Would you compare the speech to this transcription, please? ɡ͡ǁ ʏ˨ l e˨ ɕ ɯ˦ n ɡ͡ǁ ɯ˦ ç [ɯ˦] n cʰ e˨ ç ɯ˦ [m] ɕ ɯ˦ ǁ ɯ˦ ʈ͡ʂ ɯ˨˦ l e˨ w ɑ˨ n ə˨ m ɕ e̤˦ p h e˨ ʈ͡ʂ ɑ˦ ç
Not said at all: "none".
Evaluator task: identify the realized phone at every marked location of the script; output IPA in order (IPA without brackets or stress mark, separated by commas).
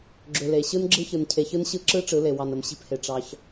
ɯ˨, n